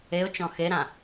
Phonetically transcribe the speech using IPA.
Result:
e ʊ̯ t͡ʃ ɔ̃ x e ɾ ã

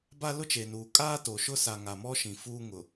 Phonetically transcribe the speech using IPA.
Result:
b a˦ l ʊ˦ t͡ʃ e˨ n uː˨ kʼ aː˦ t o˨ ʃ ʊ˦ s a˨ ŋ a˨ m ɔ˦ ʃ ĩ˨ f uː˦ ŋ ʊ˨

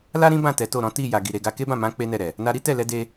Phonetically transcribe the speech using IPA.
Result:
l a˦ ɾ ĩ˦ b ã˦˨ t ɛ˨˦ t o˦˨ ɾ ɔ̃˨˦ t i˦˨ j a˨ ɡ i˨ ɾ e˨˦ ɡ a˧ k e˦ b ã˦˨ m ã˨˦ k͡p e˦ n ɛ˦˨ ɾ ɛ˨ | n a˧ ɾ i˦ t ɛ˦˨ l ɛ˨˦ d e˧

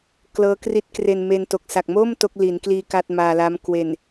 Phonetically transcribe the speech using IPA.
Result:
k l ɤː˦˥ k r i˦˥ t̚ k r e˧ n m e˧ n t o˨˩ k̚ s a˨˩ k̚ m o˥˩ m t o˦˥ k̚ l i˩˦ n k l iː˧ k a˥˩ t̚ m aː˧ l a˦˥ m k w e˨˩ n

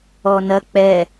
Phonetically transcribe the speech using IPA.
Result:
ɔ n ɐ k͡p ɛ

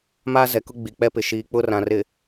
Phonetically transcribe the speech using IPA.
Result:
m aː˦ z ɛ˨ k ʊ˦ ɡ͡b i˨ k͡p ɛ˦ p ɪ˨ ʃ iː˨ k͡p ʊ˦ r ã˨ r ɪ˨

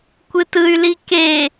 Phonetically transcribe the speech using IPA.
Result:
kʷ ɨ t ɯ y̯ l i k e

